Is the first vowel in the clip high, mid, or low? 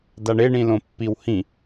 low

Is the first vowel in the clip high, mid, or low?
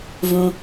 high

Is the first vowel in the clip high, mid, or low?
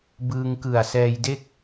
high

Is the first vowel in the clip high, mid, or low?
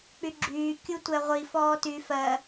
high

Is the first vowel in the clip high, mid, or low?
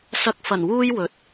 low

